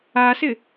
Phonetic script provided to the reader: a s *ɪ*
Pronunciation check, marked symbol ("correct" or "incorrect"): correct